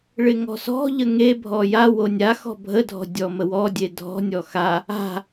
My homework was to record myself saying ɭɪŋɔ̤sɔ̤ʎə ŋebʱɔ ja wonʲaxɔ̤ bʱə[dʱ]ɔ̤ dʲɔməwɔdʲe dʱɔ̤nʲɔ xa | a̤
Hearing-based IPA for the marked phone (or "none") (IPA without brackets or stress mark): dʱ